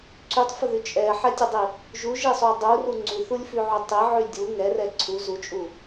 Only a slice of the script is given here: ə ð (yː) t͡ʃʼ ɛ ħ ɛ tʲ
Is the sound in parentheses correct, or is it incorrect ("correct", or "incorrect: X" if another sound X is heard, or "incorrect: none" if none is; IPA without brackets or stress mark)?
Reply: incorrect: y